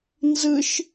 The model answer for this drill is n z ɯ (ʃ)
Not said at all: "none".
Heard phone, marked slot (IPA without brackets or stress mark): ʃ